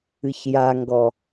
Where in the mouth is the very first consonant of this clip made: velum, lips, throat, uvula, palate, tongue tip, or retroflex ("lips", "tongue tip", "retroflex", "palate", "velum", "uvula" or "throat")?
palate